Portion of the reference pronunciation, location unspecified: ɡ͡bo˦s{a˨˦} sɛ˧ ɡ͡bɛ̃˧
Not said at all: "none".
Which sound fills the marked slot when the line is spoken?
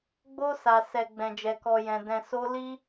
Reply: a˧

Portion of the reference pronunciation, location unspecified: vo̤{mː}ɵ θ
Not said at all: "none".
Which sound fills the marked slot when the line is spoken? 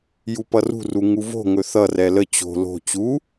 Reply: ŋ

